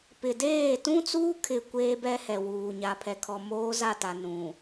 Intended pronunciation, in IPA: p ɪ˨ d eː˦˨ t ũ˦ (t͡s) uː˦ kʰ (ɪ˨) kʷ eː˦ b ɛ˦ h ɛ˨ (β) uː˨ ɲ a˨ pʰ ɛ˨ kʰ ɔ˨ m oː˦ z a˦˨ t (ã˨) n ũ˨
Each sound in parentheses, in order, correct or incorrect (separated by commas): correct, correct, incorrect, incorrect